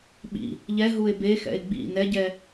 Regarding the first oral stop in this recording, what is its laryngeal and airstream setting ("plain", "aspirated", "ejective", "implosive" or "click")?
implosive